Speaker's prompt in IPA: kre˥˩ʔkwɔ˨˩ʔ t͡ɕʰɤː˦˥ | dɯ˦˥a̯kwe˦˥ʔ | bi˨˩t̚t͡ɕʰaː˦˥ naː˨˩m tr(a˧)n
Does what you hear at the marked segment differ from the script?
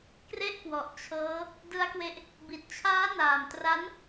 yes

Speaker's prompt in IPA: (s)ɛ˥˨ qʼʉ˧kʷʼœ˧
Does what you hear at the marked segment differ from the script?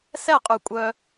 no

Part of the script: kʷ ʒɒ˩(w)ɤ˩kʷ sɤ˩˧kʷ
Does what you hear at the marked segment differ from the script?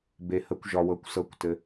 no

